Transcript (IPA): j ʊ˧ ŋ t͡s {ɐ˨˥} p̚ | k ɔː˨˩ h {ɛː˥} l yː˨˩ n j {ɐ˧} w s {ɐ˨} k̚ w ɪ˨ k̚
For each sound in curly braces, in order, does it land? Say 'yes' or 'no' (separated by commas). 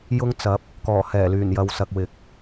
yes, no, no, yes